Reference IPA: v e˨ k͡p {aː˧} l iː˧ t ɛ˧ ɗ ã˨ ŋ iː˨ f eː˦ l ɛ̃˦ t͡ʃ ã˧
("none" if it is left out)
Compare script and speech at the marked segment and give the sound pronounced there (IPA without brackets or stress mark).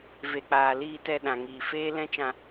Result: aː˨